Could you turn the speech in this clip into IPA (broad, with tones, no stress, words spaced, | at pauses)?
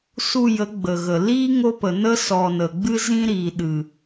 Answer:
su˧jə˨˦ ɡ͡bə˨ɣə˨ liː˦ ŋo˦pə˨ nə˦ sɔ˨ nə˨ ɡ͡bɨ˦zĩ˦ ɾiː˨ɗɨ˨